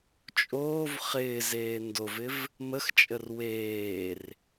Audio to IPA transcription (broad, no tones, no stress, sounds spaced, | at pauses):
t͡ʃʼ oː v χ ɪː z eː n d o v ɪ v | m ə x t͡ʃʼ ə r w eː r